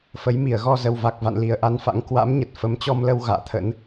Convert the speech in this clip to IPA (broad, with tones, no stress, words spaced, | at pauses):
fə˨˦jmi˧˩ə̯ ɣɔ˧zə˨˩wva˨˩k̚va̰˧˨n li˨˩ə̯ʔa˧nfa̰˧˥ŋ kwa̰˧˥mɲə˨˩t̚ fə˨˦mt͡ɕɔ˧mlə˧w ɣa̰ː˧˨t̪ʰə̰˧˥n